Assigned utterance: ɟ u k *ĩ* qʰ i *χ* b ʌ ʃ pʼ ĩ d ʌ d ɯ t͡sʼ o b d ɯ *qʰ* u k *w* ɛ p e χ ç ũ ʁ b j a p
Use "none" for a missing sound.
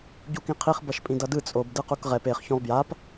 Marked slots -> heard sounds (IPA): ĩ, χ, q, ʁ

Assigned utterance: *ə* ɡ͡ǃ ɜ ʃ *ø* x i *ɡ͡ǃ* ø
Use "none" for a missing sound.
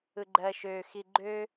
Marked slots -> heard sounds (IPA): ɯ, ø, ɡ͡ǃ

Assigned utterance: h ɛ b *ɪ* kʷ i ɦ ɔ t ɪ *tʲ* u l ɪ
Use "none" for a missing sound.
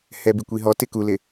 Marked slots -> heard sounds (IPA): i, k

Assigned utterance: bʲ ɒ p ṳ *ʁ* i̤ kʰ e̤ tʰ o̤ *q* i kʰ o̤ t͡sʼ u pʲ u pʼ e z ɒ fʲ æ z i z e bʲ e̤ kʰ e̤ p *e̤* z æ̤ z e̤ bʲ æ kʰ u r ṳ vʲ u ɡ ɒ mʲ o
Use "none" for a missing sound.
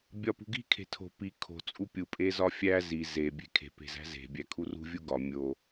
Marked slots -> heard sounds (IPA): ɡ, p, e̤

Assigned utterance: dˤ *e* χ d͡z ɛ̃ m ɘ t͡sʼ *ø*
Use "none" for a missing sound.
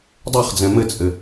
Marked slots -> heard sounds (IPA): e, ɘ

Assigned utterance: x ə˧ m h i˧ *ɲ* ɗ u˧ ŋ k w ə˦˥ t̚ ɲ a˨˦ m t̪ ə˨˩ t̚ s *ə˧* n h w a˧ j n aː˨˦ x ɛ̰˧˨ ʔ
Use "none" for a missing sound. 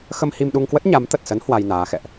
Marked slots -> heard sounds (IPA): m, ə˨˦

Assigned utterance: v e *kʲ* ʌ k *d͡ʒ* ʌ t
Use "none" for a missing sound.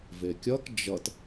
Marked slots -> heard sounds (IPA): kʲ, d͡ʒ

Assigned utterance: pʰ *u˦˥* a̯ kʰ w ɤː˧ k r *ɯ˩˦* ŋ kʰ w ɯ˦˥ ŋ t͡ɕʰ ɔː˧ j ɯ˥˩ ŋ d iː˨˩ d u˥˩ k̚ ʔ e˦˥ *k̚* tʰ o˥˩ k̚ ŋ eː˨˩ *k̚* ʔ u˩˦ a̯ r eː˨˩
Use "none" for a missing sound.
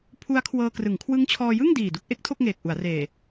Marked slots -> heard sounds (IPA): u˦˥, ɯ˩˦, k̚, k̚

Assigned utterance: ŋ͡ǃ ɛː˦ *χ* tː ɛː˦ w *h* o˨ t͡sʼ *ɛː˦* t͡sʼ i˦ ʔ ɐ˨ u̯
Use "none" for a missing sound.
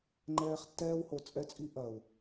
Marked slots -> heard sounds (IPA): χ, h, ɛ˦

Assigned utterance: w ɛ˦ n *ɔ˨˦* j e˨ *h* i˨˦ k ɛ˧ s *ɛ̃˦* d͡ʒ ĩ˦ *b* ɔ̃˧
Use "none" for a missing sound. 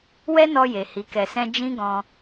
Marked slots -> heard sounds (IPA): ɔ˧, h, ɛ̃˦, ɡ

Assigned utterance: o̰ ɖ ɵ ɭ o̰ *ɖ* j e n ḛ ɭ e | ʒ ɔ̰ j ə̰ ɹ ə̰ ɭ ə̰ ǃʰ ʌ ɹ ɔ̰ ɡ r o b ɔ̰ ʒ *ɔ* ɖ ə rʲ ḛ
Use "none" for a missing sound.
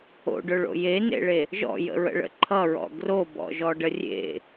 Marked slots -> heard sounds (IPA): none, ɔ

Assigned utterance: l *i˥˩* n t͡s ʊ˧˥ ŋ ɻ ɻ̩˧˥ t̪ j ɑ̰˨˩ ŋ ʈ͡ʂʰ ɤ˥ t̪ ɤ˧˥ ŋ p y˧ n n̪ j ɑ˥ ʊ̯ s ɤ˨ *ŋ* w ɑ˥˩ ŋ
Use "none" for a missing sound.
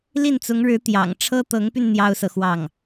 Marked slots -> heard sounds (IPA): i˥˩, x

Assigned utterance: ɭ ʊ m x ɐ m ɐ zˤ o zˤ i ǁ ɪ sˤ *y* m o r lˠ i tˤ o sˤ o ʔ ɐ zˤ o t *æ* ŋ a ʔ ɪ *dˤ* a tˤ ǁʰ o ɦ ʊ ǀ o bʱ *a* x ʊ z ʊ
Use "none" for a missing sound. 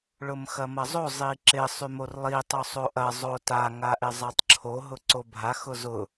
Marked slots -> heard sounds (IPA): y, a, zˤ, a

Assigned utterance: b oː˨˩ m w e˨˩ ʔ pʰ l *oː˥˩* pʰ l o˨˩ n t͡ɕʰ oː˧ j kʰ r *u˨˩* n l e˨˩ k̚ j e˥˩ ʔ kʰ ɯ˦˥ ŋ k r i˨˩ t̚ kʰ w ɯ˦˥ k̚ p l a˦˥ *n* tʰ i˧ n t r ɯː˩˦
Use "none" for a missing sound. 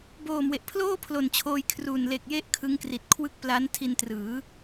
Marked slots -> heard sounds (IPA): oː˥˩, u˨˩, n

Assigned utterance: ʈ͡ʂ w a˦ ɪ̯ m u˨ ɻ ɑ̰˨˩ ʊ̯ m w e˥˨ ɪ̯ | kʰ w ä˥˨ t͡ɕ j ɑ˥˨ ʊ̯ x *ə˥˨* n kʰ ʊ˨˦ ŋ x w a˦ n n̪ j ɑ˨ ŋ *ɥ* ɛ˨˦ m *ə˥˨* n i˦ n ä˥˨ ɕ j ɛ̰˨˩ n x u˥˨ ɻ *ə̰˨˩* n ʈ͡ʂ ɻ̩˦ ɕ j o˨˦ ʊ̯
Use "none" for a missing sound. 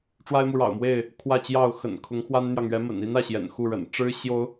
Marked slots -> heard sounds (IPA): ə̰˨˩, ɥ, ə̰˨˩, ə̰˨˩

